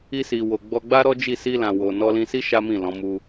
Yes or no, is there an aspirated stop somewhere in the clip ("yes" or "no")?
no